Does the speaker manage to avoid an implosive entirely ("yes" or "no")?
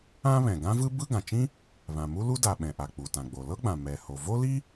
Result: no